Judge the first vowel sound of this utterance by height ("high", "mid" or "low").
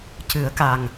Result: high